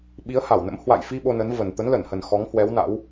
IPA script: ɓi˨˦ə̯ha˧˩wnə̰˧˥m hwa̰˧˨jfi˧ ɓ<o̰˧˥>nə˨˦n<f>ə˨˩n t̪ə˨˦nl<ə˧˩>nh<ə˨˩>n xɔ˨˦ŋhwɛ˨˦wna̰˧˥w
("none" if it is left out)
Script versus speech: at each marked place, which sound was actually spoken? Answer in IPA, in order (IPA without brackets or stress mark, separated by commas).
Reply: o˧, v, ə˧˩, ə˨˩